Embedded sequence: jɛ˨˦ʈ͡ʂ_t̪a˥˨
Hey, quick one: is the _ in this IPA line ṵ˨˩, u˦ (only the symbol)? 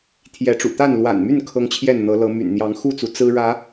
ṵ˨˩